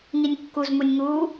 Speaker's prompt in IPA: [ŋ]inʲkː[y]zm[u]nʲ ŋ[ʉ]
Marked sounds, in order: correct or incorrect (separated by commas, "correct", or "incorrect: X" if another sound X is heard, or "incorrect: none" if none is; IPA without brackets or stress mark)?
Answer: correct, incorrect: u, correct, incorrect: u